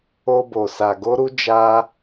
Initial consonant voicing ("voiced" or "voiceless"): voiced